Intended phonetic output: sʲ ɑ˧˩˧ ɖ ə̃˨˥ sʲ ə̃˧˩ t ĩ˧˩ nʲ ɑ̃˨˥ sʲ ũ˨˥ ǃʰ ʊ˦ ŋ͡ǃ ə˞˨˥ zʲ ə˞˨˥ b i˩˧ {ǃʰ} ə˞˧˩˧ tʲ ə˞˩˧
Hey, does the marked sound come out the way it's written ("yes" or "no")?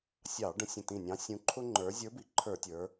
yes